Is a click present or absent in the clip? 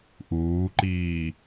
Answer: present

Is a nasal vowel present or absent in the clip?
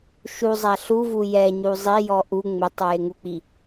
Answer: absent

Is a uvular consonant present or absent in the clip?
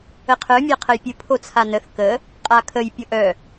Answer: present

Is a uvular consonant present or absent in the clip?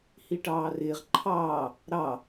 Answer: present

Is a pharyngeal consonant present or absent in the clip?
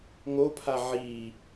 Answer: present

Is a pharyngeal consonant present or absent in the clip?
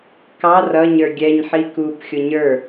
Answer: present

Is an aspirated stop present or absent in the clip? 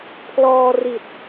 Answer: present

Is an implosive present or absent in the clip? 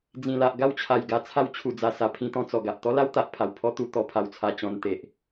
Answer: absent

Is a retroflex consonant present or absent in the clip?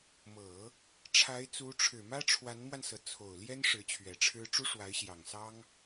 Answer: present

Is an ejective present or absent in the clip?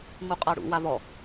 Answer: present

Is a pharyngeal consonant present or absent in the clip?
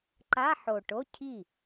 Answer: present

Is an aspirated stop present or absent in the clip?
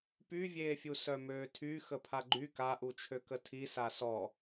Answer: present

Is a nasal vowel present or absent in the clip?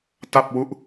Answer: absent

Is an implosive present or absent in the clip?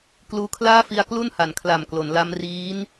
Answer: absent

